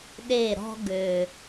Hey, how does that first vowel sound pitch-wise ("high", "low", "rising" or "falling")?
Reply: falling